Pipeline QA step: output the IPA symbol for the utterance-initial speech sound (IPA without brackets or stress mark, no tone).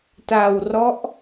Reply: t